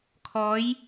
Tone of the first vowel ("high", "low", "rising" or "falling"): rising